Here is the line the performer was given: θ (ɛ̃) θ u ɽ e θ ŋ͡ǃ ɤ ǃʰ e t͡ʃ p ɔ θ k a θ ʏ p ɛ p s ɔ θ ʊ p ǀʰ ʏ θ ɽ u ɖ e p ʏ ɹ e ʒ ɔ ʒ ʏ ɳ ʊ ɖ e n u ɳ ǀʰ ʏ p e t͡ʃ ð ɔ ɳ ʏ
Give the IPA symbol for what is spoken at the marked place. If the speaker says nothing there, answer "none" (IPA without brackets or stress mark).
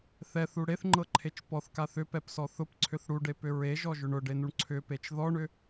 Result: ɛ